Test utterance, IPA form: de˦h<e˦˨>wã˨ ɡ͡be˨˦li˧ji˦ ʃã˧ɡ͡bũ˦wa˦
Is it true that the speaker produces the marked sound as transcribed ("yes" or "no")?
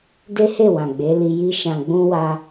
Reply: yes